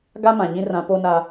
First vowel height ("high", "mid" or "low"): low